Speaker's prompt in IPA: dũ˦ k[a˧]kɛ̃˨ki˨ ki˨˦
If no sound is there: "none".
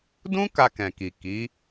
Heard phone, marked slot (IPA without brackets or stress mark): a˧